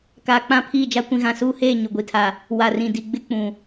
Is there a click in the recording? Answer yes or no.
no